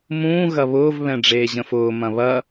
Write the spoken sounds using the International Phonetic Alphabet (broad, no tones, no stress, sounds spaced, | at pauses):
m ũː ɣ ɐ β ʊː v β ɛ̃ ɖ͡ʐ eː ʑ ə̃ f ʊː m ɐ̃ β ɐ